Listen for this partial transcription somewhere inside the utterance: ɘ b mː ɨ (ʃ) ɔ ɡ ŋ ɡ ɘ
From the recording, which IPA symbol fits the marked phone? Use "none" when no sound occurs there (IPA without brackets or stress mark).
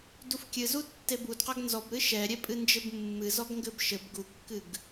z